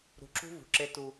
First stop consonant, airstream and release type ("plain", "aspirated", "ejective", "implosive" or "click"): click